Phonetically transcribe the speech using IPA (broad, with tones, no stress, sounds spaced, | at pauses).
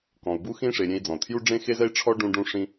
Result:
k ɔ̃˩ u̯ b u˥ x ĩ˥ ʂ e˩ ɾʲ ẽ˧ i̯ d͡z ɔ̃˩ u̯ tʰ j u˥ ɖ͡ʐ ẽ˥ x e˥ z ɛ˥ i̯ ʈ͡ʂʰ ɔ˥ ɖ ũ˧ ɖ ũ˧ ʂ ĩ˧